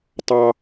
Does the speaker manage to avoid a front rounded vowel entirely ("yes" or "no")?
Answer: yes